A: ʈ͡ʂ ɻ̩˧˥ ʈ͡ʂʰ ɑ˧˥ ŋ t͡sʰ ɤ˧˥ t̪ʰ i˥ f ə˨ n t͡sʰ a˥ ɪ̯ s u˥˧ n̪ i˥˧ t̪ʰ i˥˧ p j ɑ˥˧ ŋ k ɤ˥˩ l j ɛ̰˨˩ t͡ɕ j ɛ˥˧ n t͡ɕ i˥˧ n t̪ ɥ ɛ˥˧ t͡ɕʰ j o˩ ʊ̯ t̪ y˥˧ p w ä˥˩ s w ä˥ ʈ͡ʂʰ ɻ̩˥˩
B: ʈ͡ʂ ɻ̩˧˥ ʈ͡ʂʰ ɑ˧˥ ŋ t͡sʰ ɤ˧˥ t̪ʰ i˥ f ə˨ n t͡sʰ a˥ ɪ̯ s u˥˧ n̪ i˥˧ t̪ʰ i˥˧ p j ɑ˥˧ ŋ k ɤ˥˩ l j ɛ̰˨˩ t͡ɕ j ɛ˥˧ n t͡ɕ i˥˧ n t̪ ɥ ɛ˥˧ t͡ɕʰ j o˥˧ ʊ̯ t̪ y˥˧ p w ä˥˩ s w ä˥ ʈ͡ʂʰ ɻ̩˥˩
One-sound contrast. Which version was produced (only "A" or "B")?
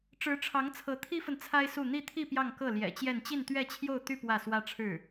B